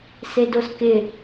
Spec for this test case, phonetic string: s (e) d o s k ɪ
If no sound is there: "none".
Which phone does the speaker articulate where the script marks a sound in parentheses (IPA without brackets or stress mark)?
e